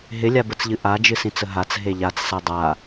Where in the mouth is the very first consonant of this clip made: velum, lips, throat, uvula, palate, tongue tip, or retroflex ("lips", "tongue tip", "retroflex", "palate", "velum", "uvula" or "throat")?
throat